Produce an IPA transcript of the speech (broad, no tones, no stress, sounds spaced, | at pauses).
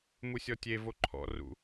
m u sʲ ɔ tʲ e v o ǃʰ ɔ̰ r ṵ